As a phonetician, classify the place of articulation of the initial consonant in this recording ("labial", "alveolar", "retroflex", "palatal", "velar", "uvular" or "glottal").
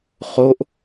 uvular